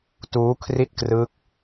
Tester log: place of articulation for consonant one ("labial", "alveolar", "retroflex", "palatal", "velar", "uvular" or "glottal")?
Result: alveolar